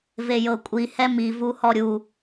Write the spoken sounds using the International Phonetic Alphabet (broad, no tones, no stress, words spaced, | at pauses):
vejɤkʷʼi hɛmi vuhɔɾʲu